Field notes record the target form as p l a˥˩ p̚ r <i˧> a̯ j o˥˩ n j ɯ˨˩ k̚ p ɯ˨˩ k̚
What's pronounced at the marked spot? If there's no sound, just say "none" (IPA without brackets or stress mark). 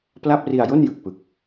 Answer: i˧